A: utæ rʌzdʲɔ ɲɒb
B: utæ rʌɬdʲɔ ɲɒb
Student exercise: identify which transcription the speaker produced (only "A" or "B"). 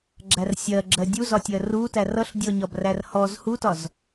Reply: B